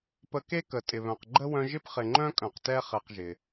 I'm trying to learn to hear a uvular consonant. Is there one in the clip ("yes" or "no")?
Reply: yes